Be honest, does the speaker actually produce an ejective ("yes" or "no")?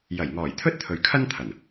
no